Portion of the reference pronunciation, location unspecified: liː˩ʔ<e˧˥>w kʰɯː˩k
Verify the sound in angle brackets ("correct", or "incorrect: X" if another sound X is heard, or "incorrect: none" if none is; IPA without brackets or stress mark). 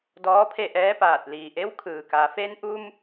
correct